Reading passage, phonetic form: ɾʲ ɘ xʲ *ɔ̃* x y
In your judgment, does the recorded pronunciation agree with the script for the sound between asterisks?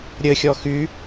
no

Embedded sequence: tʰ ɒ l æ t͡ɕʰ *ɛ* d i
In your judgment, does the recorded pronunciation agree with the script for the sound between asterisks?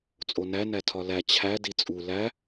no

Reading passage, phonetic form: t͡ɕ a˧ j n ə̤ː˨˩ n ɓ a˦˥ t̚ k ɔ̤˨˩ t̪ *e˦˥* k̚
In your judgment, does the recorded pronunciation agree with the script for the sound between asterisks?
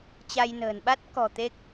yes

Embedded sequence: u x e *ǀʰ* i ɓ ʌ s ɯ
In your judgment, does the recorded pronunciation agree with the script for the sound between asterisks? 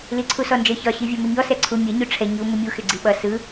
no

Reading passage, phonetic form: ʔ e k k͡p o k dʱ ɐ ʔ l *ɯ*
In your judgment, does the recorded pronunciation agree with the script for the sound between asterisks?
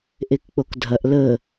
no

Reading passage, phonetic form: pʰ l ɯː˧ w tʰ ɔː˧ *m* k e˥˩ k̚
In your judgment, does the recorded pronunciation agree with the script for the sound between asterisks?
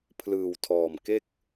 yes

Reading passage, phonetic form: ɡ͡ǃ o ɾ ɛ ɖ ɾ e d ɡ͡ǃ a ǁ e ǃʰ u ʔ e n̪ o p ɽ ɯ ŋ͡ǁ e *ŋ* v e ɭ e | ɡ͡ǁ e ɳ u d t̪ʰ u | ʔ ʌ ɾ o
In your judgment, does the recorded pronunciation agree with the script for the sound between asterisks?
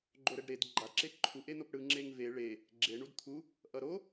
yes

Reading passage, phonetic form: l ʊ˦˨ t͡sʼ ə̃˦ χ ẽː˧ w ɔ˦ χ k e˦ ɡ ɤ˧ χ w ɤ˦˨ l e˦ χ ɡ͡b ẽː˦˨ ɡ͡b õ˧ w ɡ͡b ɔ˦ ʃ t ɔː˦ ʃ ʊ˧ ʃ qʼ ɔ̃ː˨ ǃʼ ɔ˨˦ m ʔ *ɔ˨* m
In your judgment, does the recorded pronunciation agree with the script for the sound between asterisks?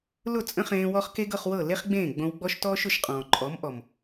yes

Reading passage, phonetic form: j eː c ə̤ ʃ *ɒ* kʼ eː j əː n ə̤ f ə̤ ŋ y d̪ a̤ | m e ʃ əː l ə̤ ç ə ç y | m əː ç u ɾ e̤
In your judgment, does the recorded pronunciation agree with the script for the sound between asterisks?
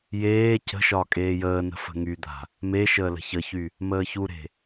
yes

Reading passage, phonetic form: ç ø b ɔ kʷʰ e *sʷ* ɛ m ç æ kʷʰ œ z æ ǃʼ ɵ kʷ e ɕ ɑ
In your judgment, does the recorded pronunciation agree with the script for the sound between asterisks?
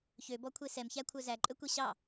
no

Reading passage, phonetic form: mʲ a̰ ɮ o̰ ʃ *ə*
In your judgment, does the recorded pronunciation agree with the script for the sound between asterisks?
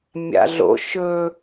no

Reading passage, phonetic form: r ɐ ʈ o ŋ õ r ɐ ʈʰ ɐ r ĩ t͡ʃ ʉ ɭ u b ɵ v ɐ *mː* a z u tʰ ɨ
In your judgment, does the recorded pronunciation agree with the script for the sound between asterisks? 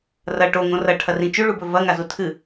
no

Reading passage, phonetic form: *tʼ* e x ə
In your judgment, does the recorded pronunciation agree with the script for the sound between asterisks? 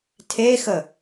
no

